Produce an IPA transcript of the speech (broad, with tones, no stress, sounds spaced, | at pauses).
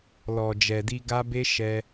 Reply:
l ɔ˨ d͡ʒ ɛ˨ d i˧ ɡ a˦ b e˦ ʃ ɛ˧